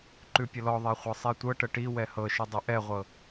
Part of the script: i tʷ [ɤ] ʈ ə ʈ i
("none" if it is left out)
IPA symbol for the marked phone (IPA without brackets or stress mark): ɤ